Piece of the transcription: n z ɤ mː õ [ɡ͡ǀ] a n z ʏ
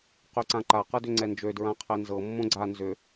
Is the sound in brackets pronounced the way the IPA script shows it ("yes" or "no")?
yes